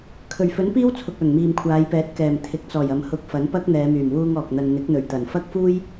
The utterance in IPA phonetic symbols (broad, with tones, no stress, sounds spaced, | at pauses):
kʰ ɵ˨˩ ɥ f ɵ˨˥ n p iː˥ w t͡sʰ ʊ˨ k̚ œː˨˩ ŋ m iː˨ m kʷʰ aː˨˧ j p ɛː˨˥ t̚ k ɛː˨˩ m t̪ʰ ɪ˨˥ k̚ t͡s ɔː˨˩ j ɐ˨ m h ʊ˨˥ k̚ f ɐ˨˥ n p ɐ˥ k̚ n̪ ɛː˨˧ m yː˨˩ m w uː˧ ŋ ɔː˨ k̚ n̪ ɐ˧ n n̪ ɪ˨˥ k̚ n̪ ɵ˨˩ ɥ t̪ ɐ˨˩ n f ɐ˥ k̚ f uː˥ j